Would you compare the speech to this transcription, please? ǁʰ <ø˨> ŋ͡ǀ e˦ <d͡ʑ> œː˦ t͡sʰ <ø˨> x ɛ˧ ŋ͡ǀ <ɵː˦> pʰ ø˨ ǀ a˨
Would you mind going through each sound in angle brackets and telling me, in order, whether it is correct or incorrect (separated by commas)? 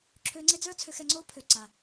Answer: incorrect, incorrect, incorrect, incorrect